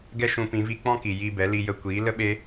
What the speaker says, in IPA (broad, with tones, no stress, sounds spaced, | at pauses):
ɡ ɛ˦ ʃ ũ˧ p ĩ˨˦ v i˦ k͡p ɔ̃˦ k i˨ j i˧ b ɛ˨˦ l i˧ j ə˧ kʷ iː˨˦ l ə˦ ɓ e˦